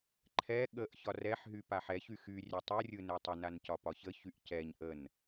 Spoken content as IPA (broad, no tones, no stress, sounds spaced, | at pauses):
ǃʰ ɛ ɠ ə ʔ ç ɒ r ɛ ħ ɦ y p a ħ ɛ ç y x y rʲ ɛ tˤ ɯ rʲ ɯ n ɛ tˤ ə n a n c ɒ p ɒ ç ə ç y ʔ c ɛ ɲ ʔ ə n